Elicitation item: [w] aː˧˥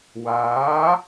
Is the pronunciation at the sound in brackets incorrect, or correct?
correct